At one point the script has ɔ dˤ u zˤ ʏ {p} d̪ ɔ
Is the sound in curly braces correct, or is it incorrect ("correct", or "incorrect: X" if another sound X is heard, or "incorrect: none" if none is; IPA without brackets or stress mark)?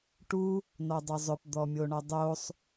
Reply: correct